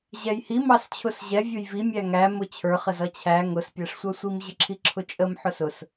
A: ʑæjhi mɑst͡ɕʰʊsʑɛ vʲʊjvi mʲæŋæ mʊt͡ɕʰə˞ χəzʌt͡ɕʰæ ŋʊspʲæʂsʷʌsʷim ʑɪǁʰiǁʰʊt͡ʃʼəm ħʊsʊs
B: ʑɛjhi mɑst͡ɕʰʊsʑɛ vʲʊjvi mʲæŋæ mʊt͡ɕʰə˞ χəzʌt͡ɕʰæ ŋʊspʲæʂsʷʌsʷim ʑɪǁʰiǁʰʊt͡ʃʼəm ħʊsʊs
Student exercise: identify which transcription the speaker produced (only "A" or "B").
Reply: B